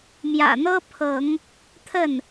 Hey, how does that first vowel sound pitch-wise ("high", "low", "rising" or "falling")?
low